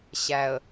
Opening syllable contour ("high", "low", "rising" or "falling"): low